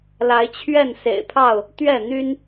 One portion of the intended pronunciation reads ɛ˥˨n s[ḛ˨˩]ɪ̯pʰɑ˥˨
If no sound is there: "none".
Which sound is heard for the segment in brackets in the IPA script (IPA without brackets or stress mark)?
ḛ˨˩